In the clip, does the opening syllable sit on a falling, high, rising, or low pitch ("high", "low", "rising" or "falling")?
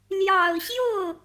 low